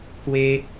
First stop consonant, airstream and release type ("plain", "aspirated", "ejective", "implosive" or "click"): plain